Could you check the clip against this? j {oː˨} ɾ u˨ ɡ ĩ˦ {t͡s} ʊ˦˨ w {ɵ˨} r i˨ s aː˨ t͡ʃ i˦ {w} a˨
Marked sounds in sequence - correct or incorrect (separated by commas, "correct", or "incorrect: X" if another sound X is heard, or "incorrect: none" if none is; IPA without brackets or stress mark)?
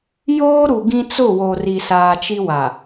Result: incorrect: oː˦, correct, incorrect: o˨, correct